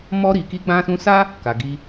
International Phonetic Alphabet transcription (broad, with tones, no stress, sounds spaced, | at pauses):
m ɔ˧ ɾ i˨ k i˧ ɡ͡b ã˧ s ũ˧ s a˦ | k a˨ ɡ i˧